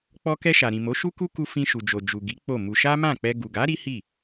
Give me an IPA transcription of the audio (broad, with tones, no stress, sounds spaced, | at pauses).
k͡p ɔ˧ k ɛ˧ ʃ a˨ ɾ ĩ˨ m o˨˦ ʃ u˦ k u˦ k u˧ f ĩ˧ ʃ u˨ d͡ʒ o˨ d͡ʒ u˨ ɡ i˨˦ k͡p o˦˨ m u˧ ʃ a˦ m ã˦˨ k͡p ɛ˧ ɡ u˨ ɡ a˨˦ ɾ i˦ h i˦˨